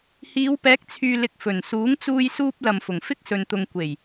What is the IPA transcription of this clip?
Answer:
hiː˨˧wpɛː˨˥k̚t͡sʰyː˨lɪ˨k̚ fɵ˨˩n suː˨˥ŋt͡suː˧jsuː˧p̚ lɐ˨mfʊ˨˩ŋ fɪ˥k̚sɵ˨nt̪ʊ˨ŋ kʷe˨˩j

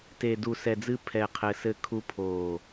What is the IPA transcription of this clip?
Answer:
te˨ du˨sɛ˨d͡zɨ˧ pʰɛ˨ qʰɘː˨sɘ˧kʰu˧ pʰoː˨

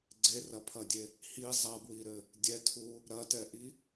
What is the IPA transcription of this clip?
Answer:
ɡ͡ǀerɐpʰɐdʲe | hi zˤɐbwiɾɘ | dʲɛtʰu | ɾɐtɛʔi

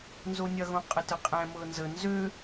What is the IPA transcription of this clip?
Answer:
nzonʲɐ ɣõqʼətəqʼɛ̃ mɤnzə nzø

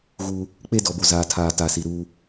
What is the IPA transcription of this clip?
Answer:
ɣuː˦ | k͡pe˦dɔ˨bo˨ zaː˨tʰaː˨ ta˨si˨ɾuː˦

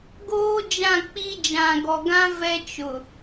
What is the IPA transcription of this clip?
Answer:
ɡoː˦d͡ʒã˦˨k͡pi˦ d͡ʒã˨ɡɔ˨ɡã˦ vɛ˦t͡ʃʊ˨

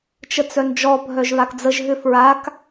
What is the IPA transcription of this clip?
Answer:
t͡ʃət͡sœnd͡ʒɔ bʱœʒβakd͡zəʒ ɦʏfɹak

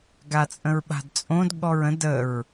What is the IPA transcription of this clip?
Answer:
ɡat͡sʼə̃ɹɓa̤dt͡sʼõd ɠɔɹə̃d əɹ

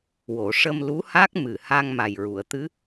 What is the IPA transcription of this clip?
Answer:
wo˨˩˨ʂə˧m lu˧˥ha˦˥k̚mɨ˨˩ha˧ŋ ma˨˩jɹu˨˩˨ə̯t̪ɨ˧˥

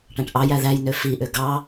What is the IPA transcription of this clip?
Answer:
ʈæ̃ʈʔɑjæ ðæj nøfiʔø ɡɑ

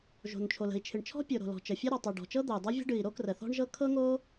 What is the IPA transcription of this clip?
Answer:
ʒo̤˩n t͡ʃʰo˩lə̤˩i̯t͡ʃʰɨ˩ɳ t͡ʃʰɔ̤˥pʲo˩ɾo̤˩ lɔ̤˩t͡ʃə˩fʲo˥ ɾɔ˩tˤɨ˩ɖɔ̤˩t͡ʃɤ˥ d̪ə˩y̯dˤɤ˥vʲə̤˥ ɖɨ˩i̯ɾo˥ krə˩θɔ̤˥ɳʒɤ˥ kʰɤ˥ŋo˥

